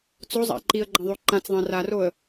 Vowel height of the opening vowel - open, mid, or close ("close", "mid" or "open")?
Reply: mid